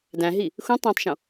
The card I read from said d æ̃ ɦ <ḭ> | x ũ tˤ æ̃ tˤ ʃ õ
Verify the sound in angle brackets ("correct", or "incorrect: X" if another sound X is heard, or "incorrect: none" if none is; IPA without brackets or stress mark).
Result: incorrect: i